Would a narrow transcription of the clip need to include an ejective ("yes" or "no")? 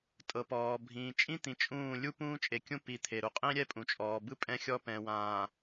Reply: yes